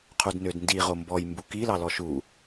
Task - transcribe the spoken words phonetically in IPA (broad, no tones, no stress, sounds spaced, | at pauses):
qʰ u d n ø d n d i ʁ o m b ɔ j m b u k i l ɑ l ɔ ʃ u